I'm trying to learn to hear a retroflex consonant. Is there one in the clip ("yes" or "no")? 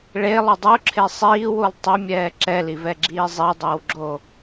yes